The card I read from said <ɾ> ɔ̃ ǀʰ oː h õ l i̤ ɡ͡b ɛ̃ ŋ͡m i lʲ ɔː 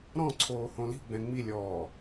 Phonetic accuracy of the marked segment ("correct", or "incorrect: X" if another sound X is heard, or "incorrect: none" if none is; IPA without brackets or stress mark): correct